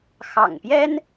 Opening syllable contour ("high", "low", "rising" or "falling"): low